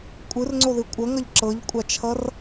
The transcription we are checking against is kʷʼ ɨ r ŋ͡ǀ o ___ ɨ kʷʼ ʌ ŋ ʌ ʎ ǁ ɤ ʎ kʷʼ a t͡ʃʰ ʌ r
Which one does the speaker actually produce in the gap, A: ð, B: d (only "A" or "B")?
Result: A